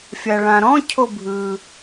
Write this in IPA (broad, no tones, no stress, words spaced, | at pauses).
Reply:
fʲaɭãɾɔ̃ cʰobʱɯ